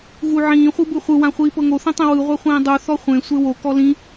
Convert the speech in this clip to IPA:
ɣ u ʕ ĩː χʷ ɯ b ɯ χʷ ɯ w ã χʷ iː p ɤ ŋ o θ ĩ tˤ ĩ w ɯ ʁʷ a χʷ ĩː dˤ u θ ɔ χʷ ẽ sʷ e w o k ɔ l ĩ

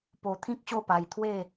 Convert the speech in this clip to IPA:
p o˧ t̪ʰ ĩ˦ k̚ ɕ o˥˧ p a˧ j t̪ʰ w e˥˧

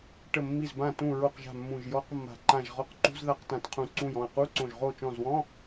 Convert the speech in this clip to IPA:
ʈ ə˧˩ mː i˧˩ z b ã˧˩ t ũ˧˩ ɹ o˧˩ q ʒ a̤˧˩ mː ũ˧˩ ʒ j ɔ˧˥˧ q mː a̤˧˩ ǃ ã˧˩ ʒ ʁ ɔ˧˩ q ǃ ṳ˧˥˧ z ð a˧˥˧ q t ã˧˩ t qʰ ũ˧˩ ǀ ũ˧˩ j ɔ̃˧˩ ɐ̯ q u˧˥˧ ǀ õ˧˩ ʒ ʁ o˧˩ t͡ʃ ɔ̃˧˩ z w ɔ̃˧˥˧

